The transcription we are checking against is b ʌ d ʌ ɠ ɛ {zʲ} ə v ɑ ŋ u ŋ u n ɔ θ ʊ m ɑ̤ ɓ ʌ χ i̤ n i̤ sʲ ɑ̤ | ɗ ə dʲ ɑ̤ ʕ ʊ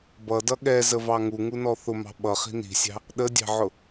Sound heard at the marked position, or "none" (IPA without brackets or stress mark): z